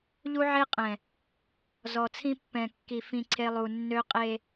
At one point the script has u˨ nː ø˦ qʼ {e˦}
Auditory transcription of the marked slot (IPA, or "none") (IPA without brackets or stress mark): e˦